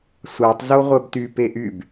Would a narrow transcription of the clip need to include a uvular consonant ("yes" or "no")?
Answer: yes